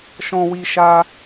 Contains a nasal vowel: yes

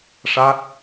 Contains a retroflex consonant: yes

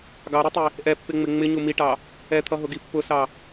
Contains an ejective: no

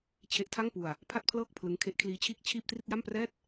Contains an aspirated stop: yes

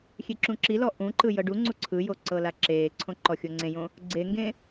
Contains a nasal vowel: yes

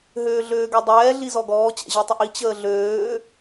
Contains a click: no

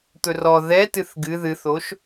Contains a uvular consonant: no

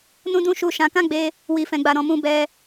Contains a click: no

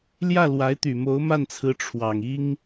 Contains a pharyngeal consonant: no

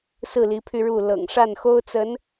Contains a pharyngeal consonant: no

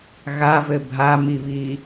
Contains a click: no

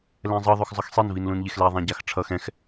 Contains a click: no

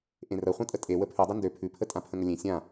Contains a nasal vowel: yes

